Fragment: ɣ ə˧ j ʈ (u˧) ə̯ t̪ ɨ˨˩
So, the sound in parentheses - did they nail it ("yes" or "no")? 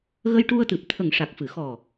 yes